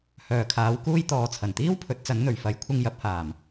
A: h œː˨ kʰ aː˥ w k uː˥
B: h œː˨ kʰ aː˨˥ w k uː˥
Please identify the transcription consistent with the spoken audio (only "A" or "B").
B